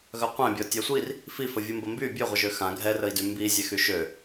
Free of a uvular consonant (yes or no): no